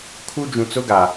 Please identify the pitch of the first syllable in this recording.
high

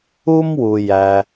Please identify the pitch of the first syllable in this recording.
high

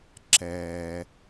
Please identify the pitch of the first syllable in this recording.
low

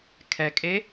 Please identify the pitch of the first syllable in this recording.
low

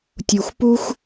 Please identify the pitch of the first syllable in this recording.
low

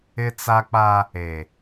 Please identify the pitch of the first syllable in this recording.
high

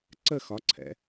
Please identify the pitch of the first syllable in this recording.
falling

